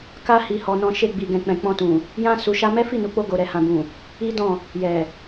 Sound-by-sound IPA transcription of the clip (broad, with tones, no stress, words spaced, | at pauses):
ka˦ hi˧hɔ˧nɔ̃˧ ʃe˧ɡ͡bi˨ɡɛ̃˨k͡pɛ̃˨ k͡pɔ̃˧tũ˨ | jã˦ su˧ʃa˦ mɛ˦fi˦˨nu˨k͡po˧ ɡo˨ɾɛ˨hã˨bũ˨ | i˦dɔ̃˦˨ | jɛ˨